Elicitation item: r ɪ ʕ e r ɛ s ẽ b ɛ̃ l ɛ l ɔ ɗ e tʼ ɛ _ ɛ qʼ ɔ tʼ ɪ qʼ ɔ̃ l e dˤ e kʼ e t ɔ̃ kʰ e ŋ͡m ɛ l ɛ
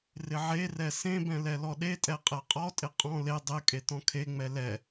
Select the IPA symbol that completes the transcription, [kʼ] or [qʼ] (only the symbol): qʼ